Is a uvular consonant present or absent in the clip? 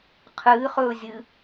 present